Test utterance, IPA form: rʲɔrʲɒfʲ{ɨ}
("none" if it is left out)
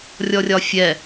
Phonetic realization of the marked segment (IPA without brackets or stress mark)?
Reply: ɛ